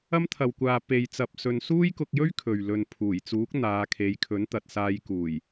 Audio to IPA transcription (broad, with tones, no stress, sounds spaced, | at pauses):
ɐ˥ m t̪ʰ ɐ˨ w kʷ aː˨ p e˨ j t͡s ɐ˧ p̚ s ɵ˧ n s uː˥ j k ʊ˧ k̚ j ɵ˥ ɥ kʰ ɵ˨ ɥ l ɵ˧ n pʰ uː˨˩ j t͡s uː˨˥ k̚ n̪ aː˨˧ kʰ e˨˧ j kʰ ɵ˨˥ n t̪ ɐ˨ t̚ s aː˧ j k uː˨˩ j